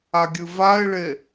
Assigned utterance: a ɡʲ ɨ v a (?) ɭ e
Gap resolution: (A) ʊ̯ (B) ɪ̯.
B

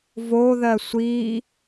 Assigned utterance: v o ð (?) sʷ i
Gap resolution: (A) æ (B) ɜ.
B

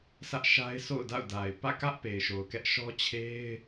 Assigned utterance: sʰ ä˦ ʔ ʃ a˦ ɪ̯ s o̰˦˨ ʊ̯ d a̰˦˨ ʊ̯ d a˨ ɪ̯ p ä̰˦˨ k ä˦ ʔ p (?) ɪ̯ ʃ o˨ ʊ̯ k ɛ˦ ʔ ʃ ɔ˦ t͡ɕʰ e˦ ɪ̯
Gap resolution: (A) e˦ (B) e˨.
B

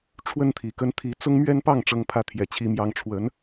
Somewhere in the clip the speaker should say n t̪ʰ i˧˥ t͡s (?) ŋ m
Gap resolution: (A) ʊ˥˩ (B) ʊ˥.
B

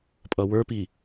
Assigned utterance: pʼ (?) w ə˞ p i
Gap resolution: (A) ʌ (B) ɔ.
A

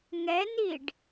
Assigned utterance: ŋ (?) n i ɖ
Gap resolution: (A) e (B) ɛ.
B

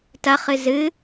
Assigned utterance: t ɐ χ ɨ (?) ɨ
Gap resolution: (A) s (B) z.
B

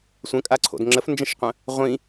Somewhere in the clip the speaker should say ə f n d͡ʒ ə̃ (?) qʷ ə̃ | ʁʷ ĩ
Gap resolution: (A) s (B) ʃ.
B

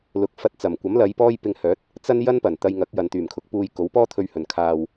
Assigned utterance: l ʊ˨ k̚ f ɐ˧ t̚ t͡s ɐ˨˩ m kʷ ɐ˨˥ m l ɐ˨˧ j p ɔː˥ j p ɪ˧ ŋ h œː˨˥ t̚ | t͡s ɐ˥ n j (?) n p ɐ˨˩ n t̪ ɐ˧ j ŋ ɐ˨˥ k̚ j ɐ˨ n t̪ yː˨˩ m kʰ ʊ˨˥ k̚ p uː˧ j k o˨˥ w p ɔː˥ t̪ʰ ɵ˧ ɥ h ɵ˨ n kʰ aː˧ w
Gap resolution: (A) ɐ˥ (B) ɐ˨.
A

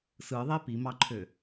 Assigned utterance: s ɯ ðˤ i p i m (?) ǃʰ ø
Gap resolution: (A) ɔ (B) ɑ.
B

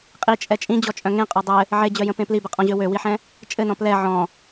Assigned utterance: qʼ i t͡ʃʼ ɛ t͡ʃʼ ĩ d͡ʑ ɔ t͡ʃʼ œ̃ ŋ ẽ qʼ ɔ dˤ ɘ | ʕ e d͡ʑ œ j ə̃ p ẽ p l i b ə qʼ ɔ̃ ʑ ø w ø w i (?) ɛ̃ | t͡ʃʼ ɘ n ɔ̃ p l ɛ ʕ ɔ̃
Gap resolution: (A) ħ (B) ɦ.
A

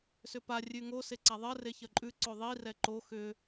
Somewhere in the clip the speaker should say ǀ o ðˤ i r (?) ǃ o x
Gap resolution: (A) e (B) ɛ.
B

